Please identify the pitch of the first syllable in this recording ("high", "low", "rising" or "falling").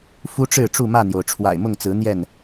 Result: high